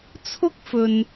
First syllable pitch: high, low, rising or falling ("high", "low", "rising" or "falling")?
high